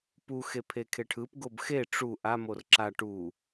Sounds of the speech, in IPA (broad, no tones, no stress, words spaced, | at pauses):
puxepʰe kʰeʈʰɯp ɡobxe ʈ͡ʂu ʔa morǁa ʈu